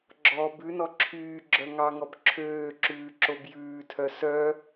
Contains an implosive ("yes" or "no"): no